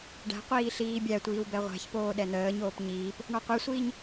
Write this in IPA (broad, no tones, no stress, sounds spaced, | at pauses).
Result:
ɖ æ̤ qʷ iː ɬ iː bʲ æ tʷ iː w b ɛ ʁʷ æ̤ ç p oː ɗ ɛ n̪ əː ɲ oː p ɲ iː p | ɳ ɔ qʷ ɛ sʷ iː ɲ